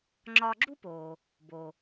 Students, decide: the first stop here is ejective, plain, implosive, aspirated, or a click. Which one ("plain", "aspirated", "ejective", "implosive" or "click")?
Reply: click